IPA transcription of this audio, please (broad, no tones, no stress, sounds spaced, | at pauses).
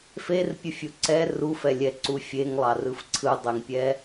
f e r pʲ ɯ fʲ u ǀ ɛ r u f ɛ lʲ ɛ ǀ u fʲ e ŋ lˠ ɑ r ɯ f ǀʰ ɯ dˤ e ŋ pʲ ɛ